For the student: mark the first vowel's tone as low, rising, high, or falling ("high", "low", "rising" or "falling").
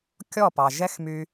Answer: falling